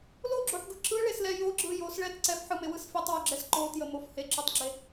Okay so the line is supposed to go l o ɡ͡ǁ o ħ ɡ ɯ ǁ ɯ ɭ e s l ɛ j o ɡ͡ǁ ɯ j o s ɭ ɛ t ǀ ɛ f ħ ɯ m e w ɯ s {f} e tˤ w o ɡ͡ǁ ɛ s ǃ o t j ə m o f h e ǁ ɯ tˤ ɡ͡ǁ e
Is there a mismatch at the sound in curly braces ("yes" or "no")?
no